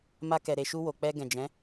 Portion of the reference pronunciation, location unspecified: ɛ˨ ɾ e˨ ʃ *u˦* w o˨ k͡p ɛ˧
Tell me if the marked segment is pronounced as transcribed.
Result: no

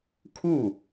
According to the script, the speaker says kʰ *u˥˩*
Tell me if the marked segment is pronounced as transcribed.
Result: yes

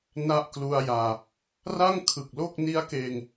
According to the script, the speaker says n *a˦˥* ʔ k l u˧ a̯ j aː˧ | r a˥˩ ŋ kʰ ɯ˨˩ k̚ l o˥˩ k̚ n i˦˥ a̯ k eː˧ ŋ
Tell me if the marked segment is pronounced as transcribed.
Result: yes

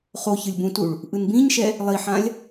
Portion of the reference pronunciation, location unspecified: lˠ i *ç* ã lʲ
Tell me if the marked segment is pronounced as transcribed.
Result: no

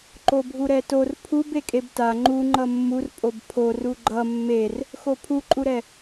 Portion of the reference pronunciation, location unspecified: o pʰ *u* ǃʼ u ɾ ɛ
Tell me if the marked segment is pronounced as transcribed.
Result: yes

